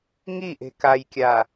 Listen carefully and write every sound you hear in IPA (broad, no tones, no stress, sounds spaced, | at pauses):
ŋ i ʔ e̤ k a j kʲ a